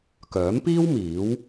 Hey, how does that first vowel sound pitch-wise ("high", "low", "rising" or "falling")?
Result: rising